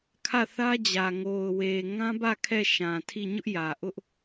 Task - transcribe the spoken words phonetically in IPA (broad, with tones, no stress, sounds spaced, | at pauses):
kʰ ä˦˨ θ ä˦ d͡ʑ ä˨ ŋ o˨ ʊ̯ w e˨ ŋ ã˦ b ä˦˨ kʰ ɛ˦˨ ʃ ã˨ tʰ i˦˨ ɲ ʊ˦ ʔ j ä˨ ʔ ʊ˦ ʔ